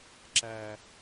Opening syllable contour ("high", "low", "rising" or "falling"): low